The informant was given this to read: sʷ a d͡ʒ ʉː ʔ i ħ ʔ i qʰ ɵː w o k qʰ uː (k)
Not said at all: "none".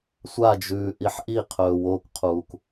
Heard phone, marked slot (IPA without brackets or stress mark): k